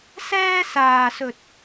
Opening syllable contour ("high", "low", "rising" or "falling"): high